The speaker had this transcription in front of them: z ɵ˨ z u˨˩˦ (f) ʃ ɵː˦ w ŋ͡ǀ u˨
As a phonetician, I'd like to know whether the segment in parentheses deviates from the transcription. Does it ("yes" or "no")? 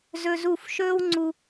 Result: no